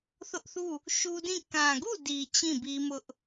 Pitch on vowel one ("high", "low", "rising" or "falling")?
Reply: high